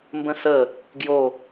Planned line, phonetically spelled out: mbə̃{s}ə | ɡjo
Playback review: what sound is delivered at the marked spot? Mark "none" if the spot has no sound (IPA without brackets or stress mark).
s